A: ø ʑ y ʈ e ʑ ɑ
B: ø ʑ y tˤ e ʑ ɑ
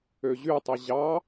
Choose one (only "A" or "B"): B